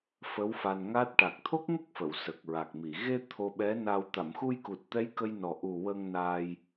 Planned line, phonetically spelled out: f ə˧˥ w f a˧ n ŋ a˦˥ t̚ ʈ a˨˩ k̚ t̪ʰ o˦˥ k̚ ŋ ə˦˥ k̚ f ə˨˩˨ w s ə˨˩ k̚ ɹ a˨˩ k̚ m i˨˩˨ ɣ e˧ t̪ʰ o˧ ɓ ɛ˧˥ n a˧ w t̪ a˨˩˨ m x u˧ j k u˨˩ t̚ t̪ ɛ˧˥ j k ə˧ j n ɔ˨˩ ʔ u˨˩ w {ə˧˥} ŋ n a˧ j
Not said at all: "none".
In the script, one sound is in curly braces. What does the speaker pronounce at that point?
ə˧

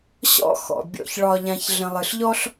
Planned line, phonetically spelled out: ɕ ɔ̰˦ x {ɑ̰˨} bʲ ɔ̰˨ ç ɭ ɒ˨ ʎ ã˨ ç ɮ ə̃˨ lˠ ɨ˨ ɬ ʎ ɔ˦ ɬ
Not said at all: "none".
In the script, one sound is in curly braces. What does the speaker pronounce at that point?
ɔ̰˨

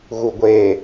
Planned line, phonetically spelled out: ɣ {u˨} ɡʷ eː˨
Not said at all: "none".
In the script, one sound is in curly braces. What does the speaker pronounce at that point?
u˨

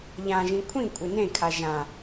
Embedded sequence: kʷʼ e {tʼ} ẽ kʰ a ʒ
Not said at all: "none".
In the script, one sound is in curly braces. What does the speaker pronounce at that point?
n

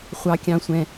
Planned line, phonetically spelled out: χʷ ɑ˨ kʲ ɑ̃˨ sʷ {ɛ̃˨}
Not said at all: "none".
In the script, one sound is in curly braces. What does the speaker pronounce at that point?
ɛ̃˨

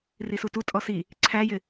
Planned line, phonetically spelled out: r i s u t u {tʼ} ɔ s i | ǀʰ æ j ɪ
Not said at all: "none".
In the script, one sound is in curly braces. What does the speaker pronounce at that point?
tʼ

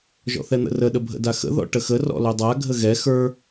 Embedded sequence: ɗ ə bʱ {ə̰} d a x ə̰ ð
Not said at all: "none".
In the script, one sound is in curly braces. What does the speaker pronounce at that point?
ə̰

